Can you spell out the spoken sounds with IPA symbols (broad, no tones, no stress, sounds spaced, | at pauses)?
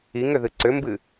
i ŋ ʏ ð ɨ ǀ ʏ m b ɨ